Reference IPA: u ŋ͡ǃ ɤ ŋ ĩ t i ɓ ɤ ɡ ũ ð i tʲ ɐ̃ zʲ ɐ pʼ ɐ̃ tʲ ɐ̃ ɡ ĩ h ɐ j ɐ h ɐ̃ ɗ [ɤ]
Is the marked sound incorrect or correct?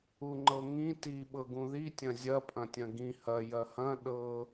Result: correct